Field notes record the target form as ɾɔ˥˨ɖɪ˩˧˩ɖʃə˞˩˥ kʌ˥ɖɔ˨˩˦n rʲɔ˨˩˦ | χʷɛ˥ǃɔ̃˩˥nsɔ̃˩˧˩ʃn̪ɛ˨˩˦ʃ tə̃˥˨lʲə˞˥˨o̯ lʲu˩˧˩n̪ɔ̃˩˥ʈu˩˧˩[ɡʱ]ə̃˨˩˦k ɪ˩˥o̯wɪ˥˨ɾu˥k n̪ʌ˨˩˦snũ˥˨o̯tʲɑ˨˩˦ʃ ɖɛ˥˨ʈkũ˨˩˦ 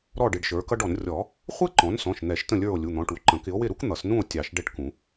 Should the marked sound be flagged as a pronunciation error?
yes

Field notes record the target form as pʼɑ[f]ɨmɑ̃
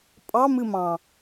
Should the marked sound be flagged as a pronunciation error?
yes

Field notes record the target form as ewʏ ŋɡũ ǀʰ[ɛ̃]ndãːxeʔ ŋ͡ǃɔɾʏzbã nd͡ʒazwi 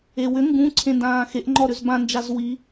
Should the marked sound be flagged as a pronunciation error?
yes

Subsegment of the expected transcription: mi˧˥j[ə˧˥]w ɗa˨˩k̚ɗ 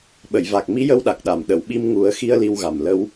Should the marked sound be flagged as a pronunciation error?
no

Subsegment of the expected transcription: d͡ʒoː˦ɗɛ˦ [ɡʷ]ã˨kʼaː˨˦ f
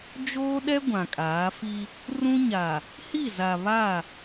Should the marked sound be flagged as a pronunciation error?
no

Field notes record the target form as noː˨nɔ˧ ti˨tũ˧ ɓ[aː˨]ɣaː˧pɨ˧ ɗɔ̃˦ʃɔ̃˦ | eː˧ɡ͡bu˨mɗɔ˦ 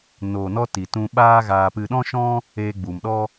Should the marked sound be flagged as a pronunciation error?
yes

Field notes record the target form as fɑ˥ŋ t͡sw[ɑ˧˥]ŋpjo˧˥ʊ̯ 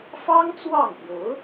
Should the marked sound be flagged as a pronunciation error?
yes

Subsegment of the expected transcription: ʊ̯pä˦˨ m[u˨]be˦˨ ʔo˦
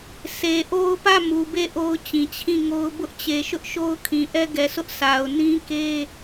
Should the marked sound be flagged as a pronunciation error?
no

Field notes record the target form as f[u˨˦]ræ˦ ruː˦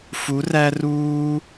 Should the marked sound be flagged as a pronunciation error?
no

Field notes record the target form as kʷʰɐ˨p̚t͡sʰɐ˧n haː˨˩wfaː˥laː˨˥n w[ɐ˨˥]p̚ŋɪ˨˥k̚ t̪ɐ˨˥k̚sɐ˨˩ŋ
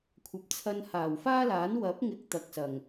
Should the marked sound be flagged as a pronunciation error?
no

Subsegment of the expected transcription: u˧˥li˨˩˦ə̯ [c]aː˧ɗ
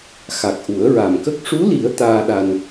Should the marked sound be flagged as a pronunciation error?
yes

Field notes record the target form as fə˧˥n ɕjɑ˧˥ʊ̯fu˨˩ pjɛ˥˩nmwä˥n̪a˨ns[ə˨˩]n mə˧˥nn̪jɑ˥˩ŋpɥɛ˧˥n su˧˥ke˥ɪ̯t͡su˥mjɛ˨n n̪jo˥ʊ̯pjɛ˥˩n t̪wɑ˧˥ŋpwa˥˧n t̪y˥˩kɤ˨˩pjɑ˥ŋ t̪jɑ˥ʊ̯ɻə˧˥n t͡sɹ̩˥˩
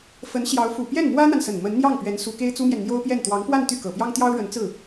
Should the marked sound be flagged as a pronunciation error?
no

